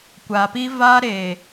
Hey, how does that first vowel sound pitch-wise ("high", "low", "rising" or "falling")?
low